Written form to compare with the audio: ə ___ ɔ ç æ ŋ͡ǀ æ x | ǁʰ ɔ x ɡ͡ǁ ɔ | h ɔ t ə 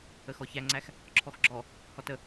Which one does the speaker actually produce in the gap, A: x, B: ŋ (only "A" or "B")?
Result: A